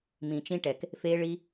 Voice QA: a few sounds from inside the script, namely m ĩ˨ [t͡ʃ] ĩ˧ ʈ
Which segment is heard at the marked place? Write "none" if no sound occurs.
t͡ʃ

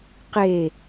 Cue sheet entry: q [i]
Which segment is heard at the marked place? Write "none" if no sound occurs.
e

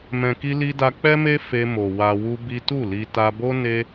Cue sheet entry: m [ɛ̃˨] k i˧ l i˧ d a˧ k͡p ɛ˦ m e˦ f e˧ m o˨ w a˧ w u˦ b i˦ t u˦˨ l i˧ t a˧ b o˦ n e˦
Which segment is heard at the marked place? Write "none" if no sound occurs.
ɛ̃˨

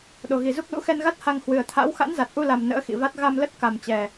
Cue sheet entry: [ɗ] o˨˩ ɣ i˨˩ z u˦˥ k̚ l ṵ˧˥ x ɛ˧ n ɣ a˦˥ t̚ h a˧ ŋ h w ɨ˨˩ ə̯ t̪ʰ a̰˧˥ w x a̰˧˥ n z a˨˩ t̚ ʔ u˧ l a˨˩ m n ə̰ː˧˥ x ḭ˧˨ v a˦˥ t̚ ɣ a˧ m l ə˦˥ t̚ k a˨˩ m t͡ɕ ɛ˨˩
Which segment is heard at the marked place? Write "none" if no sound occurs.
ɗ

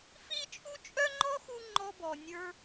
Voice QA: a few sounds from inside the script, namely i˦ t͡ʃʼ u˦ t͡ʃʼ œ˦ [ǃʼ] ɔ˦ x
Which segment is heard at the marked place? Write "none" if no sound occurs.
ŋ͡ǃ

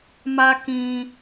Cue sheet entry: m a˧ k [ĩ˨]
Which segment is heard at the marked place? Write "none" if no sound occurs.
ĩ˨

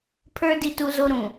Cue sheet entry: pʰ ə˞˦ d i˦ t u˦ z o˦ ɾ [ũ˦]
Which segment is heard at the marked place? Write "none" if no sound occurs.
ũ˨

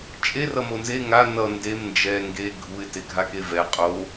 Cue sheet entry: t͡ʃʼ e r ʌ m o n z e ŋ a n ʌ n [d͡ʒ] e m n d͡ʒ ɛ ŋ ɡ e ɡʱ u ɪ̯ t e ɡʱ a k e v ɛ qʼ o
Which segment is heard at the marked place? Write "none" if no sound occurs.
d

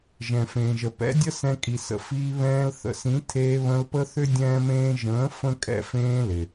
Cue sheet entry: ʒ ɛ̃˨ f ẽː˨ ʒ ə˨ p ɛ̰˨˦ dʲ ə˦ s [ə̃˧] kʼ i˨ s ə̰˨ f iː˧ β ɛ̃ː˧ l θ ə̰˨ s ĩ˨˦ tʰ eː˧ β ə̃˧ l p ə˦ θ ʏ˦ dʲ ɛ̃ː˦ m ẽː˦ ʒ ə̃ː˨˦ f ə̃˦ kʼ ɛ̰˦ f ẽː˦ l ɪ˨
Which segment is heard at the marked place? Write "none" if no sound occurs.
ɛ̃˧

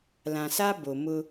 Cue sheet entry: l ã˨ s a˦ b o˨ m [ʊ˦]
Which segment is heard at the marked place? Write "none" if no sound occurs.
ʊ˦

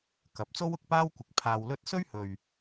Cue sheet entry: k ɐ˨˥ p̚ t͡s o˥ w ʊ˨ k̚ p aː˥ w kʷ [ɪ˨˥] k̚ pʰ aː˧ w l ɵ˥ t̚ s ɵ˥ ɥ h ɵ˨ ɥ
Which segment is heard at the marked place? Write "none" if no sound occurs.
ɪ˨˥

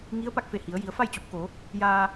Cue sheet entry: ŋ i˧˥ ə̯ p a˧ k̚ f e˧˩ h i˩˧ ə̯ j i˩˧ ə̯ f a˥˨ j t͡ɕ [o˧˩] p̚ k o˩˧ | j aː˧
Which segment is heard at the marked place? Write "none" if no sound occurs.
o˧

